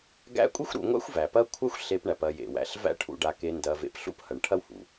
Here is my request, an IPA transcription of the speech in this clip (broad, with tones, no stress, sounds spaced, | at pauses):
ɡ æ̰˦ kʷʼ e˥ xʷ ɾ ṵ˨ ŋʷ a̰˥ xʷ v æ˩ p ɐ˥ kʷʰ a˥ xʷ ɬ e˨ p ɳ æ˩ p ɐ˨ j ḛ˩ w æ̰˨ ɬ v æ̰˦ ʈʰ ṵ˨ ɖ a˨ k e˨ n d ɐ˨ v ḛ˨ p ɬ ṵ˥ p h ɐ˩ ɳ ʈʰ ɐ˥ w h ṵ˩